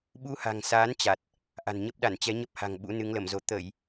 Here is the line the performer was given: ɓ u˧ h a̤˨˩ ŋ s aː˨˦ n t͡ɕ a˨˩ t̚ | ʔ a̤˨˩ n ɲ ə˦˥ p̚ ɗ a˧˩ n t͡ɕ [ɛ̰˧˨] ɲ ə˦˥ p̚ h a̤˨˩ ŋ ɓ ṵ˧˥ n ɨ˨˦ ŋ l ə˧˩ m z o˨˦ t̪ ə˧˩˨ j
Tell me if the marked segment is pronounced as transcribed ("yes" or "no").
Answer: no